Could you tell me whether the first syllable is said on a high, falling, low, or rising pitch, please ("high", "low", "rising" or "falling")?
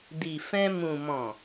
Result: low